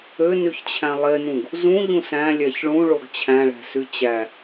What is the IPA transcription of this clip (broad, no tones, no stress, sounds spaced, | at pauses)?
ø n y ç t͡ɕʰ æ̃ lˠ e n ũ ɡ | z ũ ʎ ũ s æ̃ lʲ æ ç ɭ ũ ɭ o ɡ t͡ɕʰ æ̃ ɭ æ̤ s y t͡ɕ æ